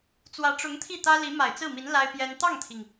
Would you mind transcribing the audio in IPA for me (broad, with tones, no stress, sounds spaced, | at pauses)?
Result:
t͡s w ä˧˥ ʈ͡ʂ ʊ˧˥ ŋ t̪ʰ i˥˩ t̪ ä˥ l i˧˥ m a˨˩ ɪ̯ t͡s ɹ̩˥˩ m i˧˥ n l a˥ ɪ̯ p j ɛ˥ n t̪ ɑ˥˩ ŋ t̪ʰ i˩ ŋ